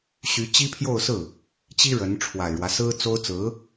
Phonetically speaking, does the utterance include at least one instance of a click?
no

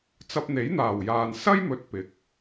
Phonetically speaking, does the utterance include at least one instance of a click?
no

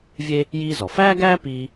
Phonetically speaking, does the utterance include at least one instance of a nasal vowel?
no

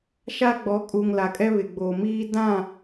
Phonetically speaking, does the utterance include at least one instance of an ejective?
yes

